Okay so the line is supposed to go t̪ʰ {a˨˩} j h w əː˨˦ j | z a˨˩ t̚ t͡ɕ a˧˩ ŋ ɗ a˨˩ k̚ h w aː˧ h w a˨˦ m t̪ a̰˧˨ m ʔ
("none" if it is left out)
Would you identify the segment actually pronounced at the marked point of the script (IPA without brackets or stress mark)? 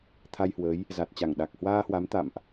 a˧